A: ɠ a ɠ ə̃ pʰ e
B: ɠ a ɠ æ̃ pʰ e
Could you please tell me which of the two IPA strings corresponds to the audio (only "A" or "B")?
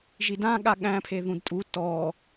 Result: B